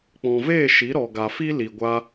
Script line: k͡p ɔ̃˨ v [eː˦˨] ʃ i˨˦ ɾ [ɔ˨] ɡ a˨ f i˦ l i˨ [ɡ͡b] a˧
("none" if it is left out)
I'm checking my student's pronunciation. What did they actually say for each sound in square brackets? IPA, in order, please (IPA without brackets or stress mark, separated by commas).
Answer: eː˦˨, ɔ˨, ɡʷ